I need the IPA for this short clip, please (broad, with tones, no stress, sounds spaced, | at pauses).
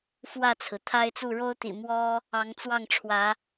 f w ä˥˨ t͡sʰ ɹ̩˩ t̪ʰ a˦ ɪ̯ t͡s u˥˨ ɻ o˦ ʊ̯ t̪ ḭ˨˩ m w ɔ˦ | ɑ˨˦ ŋ t͡s w ɑ˥˨ ŋ ʈ͡ʂʰ w ä˨˦